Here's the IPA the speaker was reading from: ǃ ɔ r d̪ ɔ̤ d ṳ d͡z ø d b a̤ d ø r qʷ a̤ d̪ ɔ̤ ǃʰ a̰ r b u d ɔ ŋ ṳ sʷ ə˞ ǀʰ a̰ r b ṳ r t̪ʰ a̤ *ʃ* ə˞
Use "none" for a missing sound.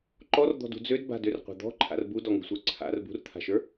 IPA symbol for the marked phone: ʃ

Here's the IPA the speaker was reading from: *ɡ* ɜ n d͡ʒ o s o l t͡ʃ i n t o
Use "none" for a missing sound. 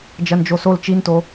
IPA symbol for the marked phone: d͡ʒ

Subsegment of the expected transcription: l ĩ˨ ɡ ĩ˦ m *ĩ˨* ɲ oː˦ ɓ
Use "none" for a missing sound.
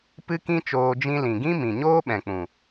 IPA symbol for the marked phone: ĩ˨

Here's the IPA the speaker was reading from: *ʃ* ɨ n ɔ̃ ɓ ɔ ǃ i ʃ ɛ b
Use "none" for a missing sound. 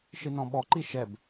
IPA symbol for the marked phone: ʃ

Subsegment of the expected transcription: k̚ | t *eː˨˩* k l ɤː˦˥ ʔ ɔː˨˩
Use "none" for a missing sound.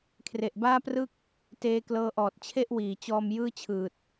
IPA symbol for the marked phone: eː˦˥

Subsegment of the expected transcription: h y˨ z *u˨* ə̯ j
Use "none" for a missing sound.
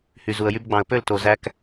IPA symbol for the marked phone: u˨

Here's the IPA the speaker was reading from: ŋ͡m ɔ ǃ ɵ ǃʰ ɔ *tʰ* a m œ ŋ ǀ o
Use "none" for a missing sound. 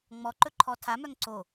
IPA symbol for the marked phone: tʰ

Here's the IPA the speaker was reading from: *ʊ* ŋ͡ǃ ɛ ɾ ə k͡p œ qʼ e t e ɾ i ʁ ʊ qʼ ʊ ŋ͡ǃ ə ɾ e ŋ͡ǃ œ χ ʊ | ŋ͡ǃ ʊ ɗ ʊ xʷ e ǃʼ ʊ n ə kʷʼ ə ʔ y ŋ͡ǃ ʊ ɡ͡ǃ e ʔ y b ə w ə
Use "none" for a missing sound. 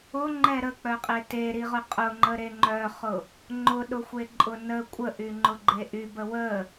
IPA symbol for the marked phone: ʊ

